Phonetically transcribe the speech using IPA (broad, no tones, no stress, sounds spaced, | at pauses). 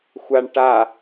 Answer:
xʷ a ɳ ʈ a